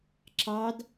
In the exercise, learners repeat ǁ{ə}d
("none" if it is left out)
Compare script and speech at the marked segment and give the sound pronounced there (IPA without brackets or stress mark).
ɑ